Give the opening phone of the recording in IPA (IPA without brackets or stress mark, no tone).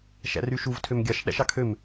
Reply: ʃ